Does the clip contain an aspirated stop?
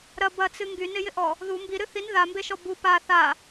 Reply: no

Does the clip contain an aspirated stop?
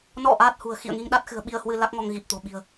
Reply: no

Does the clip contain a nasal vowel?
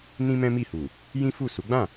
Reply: yes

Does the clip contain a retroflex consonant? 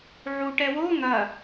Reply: yes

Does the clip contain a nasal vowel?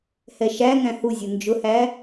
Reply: yes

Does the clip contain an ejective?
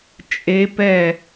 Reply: yes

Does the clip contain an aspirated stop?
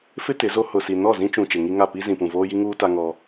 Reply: no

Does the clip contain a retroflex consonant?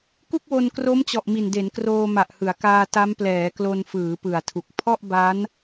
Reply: no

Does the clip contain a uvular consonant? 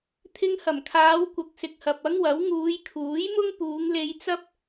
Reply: no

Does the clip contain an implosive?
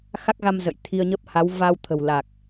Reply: no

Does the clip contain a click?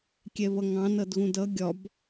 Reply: no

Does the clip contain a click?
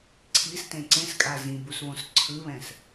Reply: yes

